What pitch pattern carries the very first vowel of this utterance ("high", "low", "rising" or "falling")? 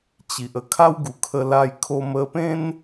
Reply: low